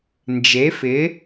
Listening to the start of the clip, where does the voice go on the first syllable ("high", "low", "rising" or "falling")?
rising